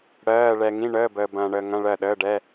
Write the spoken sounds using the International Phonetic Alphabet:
ɽ ɜː˧˥˧ ɭ ɛ˧ ŋ ĩ˧˥˧ ɳ əː˧˥˧ b əː˧ b ɐ̃ː˧ ɳ əː˧ ŋ ɐ̃˧˥˧ ɭ ɜ˥˨ ɗ əː˧˥˧ ɖ ɛ˧˥˧

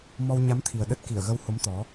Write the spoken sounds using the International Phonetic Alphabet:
m ɔ˧ w ɲ a˨˦ m t̪ʰ i˨˩ ə̯ ɗ ə˦˥ t̚ k i˧˩ ə̯ ɣ ə˧ w h o˨˦ m t̪ ɔ˨˦

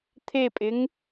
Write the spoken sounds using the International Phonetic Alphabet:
t̪ʰ e pʼ ɪ ŋ

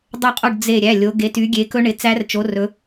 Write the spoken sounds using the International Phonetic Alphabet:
dˤ ɛ˦˨ qʼ o˦˨ ɖ d͡z e˦˨ ɾʲ æ˩˧˩ lʲ o˨˦ ɡ e˨˦ t y˨˦ ɡʲ e˨˦ k ɵ˦˥ ɳ ɪ˩˧˩ t͡s æ˦˥ r t͡ʃ o˨˦ r ɵ˨˦

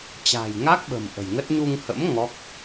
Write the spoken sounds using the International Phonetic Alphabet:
t͡ɕ a̤˨˩ j ŋ a˦˥ k̚ ɓ ə̤˨˩ m ʔ ə̤˨˩ j ŋ ə˦˥ t̚ ɲ u˧ ŋ h ə̰˧˥ m ŋ ɔ˦˥ k̚

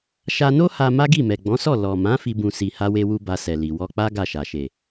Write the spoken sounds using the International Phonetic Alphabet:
ʃ a˧ n o˦ h a˧ m a˦ ɡ i˦˨ m ɛ˨ ɡ͡b ɔ̃˨˦ s ɔ˦˨ l ɔ˨ m ã˨˦ f i˧ b ũ˨ s i˧ h a˦ w e˦ w u˦ b a˧ s ɛ˨ l i˨ w ɔ˧ k͡p a˦ ɡ a˦˨ ʃ a˨ ʃ e˨

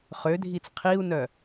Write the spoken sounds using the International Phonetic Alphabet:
χ ø dʱ i t͡s qʰ i u̯ n œ

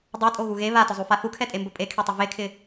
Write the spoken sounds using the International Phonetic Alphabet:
dˤ a tʼ o ɣ u ɣ e β a t ʊ zˤ u f a θ u kʰ ɛ tʼ e m b ʊ pʼ e kʰ e tˤ ʊ v e kʰ ɪ

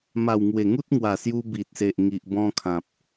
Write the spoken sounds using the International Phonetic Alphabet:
m a˨˩ w ŋ w e˨˩ ŋ u˦ t̚ ŋ w a˨˩ s j u˧ b i˨ t̚ s e˨ ʔ ŋ i˨ ʔ b ɔ̃˧ kʰ ã˨ p̚

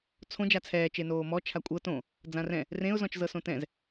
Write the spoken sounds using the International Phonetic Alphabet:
t͡sʰ õ d͡ʒ a t͡sʰ ɛː t͡ʃ e n oː m ɔ t͡ʃʰ a kʷʼ ɤ t õ | d͡z ã r ɛ̃ | r ẽ ʊ̯ z ɔ̃ t͡ʃ z ɤ s õ t ɛ̃ z

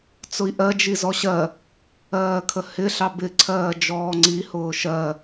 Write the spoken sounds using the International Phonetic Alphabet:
t͡s ʊ i̯ ʔ ɜ d͡ʒ i z ɔ ɕ ɜ | ɜː kʰ ə h ɪ ɬ ɑ b ɪ ǀʰ ɜː d͡ʒ ɔː ŋ͡ǀ i h ʊː ʃ ɜ

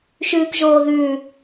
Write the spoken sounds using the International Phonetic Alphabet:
ʃ ʉː k ʒ oː ð ʉː

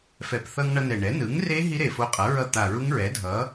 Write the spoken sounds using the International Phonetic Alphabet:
f ɛ˨˩ p θ ʌ˧ ŋ ɳ ʌ˧ n ɛ˨˩ ɳ ɛ˩˥ n ɯ˩˥ ŋ r e˦˥ ɦ i˦˥ ɾ e˨˩ f o˧ qʼ ʌ˩˥ ɹ ʌ˧ t̪ a˨˩ ɹ u˦˥ ŋ ɹ ɛ˩˥ dʱ ʌ˩˥

